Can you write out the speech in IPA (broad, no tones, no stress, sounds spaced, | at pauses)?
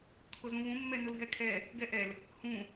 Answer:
kʰ ʊ z ũ β ũ mː ɛ n ʊ l ɦ ɛ kʰ ɛ | ɡ ɛ ʔ ɛ l | h ũ